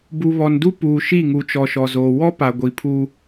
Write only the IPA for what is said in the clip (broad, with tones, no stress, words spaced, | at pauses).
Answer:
bu˨ βɔ˨ndu˦ puː˨ʃi˦˨ŋu˨t͡ʃɔ˨ ʃɔ˨zoː˨ wɔ˦ pa˨ ɡʷi˨pʰu˦